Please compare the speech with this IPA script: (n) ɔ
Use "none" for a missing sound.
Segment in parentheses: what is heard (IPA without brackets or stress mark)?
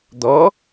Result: d̪